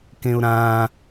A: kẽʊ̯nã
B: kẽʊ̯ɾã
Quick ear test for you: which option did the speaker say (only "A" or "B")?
B